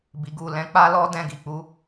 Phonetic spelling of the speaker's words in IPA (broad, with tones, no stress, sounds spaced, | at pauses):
b i˨ ɡ u˨ l ɛ̃˨˦ k͡p a˦ l ɔ˦ d ɛ̃˦˨ ɡ i˨ k͡p u˨˦